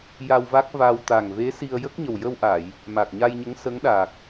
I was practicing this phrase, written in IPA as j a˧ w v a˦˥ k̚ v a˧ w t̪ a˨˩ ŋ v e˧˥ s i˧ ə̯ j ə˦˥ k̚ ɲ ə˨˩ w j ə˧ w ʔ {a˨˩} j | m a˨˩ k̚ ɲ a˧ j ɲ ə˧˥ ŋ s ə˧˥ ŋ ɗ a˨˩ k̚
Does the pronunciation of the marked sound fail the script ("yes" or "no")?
yes